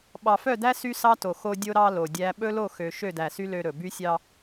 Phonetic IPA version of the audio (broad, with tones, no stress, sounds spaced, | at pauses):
ɓ ɑ˨ f œ˦˨ d æ˦ s y˦ s ɑ˦ t o˨ x o˦ dʲ o˦ ɾ ɑ˦ l o˨ dʲ æ˦ ɓ ɵ˦ l o˦˨ x ø˨ ʃ ø˦˨ d æ˨ s y˦ l ø˦ ɾ ɵ˨ b y˦ sʲ ɑ˦